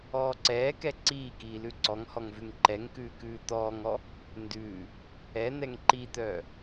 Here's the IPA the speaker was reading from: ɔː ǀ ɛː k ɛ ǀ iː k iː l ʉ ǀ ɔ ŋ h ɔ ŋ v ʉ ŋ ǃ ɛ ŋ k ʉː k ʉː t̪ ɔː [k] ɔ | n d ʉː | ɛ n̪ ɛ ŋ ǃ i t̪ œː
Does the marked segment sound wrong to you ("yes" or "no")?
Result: yes